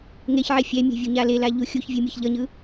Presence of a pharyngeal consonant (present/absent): present